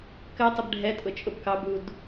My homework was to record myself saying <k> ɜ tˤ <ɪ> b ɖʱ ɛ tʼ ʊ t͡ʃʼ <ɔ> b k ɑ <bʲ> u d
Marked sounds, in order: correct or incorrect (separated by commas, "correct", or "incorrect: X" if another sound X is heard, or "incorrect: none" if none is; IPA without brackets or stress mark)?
correct, correct, incorrect: ʊ, incorrect: b